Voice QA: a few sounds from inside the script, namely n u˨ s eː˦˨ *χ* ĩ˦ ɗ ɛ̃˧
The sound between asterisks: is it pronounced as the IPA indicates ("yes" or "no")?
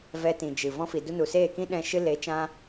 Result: no